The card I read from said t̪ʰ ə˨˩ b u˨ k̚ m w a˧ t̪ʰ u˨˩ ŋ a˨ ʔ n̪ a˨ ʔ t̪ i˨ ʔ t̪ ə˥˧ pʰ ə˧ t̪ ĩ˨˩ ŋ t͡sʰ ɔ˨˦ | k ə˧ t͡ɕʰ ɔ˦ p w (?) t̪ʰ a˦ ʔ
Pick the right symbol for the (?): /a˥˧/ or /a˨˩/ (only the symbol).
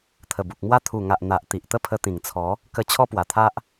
a˨˩